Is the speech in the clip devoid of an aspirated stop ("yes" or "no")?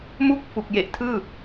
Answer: no